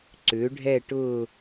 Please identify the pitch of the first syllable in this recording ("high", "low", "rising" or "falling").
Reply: rising